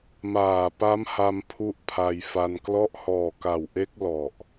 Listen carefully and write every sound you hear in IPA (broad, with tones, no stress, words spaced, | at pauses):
maː˨˩pa˦˥mha˧m pʰu˦˥ʔpʰa˧jfa˧n klɔ˦˥ʔhɔː˨˩ka˨˩wʔe˦˥k̚ lɔ˨˩ʔ